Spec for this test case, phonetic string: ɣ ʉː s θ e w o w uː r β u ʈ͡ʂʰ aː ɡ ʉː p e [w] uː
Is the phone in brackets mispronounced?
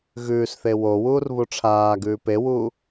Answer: no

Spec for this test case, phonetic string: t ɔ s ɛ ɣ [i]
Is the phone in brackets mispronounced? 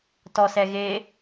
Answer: yes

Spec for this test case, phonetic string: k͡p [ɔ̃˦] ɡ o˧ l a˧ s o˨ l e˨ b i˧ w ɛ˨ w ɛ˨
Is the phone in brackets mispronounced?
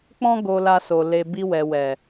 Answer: no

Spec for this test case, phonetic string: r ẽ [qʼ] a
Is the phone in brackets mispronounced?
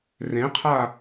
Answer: yes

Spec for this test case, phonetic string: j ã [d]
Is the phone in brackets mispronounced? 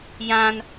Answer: yes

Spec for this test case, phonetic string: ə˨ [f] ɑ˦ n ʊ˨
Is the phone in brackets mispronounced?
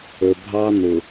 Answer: yes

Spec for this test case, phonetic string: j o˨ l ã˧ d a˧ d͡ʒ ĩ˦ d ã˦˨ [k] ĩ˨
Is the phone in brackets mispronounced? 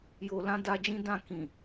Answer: no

